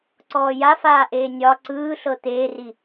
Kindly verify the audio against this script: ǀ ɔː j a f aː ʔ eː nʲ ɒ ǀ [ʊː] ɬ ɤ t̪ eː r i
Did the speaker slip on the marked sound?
yes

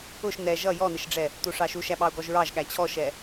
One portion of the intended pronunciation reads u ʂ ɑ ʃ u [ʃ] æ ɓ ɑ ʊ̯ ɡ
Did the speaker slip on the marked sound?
no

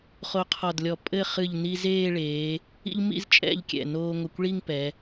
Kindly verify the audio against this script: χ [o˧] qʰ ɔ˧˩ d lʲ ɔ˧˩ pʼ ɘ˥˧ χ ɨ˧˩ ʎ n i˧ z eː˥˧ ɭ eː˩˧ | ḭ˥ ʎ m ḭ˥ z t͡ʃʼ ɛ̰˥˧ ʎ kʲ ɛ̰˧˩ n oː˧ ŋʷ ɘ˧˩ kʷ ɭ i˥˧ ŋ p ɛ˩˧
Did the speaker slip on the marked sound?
no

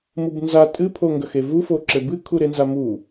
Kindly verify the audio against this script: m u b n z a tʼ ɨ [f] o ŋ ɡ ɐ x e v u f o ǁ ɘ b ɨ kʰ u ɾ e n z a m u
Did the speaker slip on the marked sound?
yes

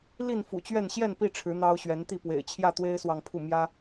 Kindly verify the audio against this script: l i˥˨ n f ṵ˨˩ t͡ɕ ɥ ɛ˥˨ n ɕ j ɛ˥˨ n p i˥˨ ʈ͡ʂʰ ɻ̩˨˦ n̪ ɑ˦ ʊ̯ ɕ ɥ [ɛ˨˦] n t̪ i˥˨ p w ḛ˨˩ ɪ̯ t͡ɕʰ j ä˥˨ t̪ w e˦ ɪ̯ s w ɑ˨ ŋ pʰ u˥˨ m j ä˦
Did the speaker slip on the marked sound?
no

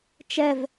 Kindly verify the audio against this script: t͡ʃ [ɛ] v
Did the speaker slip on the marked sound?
no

